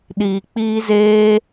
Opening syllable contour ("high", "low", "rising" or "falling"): low